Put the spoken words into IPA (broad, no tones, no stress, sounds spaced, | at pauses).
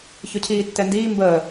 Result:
ç ɵ cʰ iː tː ɛ n d iː m b əː